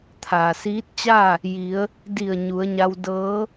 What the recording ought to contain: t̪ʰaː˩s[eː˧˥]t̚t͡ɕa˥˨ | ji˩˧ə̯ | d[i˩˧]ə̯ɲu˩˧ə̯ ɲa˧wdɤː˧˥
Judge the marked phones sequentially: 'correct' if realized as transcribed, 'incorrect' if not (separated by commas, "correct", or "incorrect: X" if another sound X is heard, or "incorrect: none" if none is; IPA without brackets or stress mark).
incorrect: iː˧˥, incorrect: i˧˩